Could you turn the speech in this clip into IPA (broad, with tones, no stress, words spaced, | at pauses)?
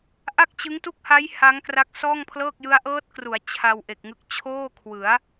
ʔa˥˩k̚t͡ɕɯ˦˥ŋtu˥˩k̚ha˦˥j ha˦˥ŋkra˦˥k̚ sɔː˥˩ŋpʰlɤː˥˩k̚jɯ˦˥a̯ ʔɤː˦˥t̚kru˩˦a̯ t͡ɕʰa˧w ʔe˨˩k̚ŋɯ˦˥k̚ t͡ɕʰoː˥˩kʰwɯ˩˦a̯